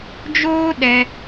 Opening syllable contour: high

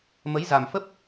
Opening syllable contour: rising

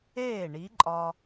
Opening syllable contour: falling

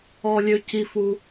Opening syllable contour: low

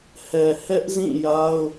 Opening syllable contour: low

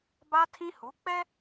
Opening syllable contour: high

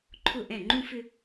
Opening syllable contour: falling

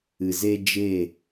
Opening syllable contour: low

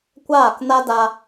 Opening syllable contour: falling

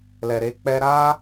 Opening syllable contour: low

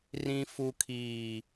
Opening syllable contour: low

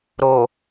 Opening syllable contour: low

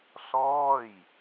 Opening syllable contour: falling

